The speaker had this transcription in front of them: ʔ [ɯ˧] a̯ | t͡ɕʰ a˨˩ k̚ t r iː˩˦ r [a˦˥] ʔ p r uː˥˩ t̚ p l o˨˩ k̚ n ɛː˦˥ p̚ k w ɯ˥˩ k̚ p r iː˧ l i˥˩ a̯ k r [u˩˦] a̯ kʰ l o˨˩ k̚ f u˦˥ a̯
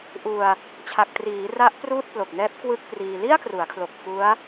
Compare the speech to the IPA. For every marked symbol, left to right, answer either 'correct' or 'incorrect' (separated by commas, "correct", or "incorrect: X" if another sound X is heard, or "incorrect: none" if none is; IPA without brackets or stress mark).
incorrect: u˧, correct, correct